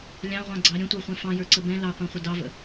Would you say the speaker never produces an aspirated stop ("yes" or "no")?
yes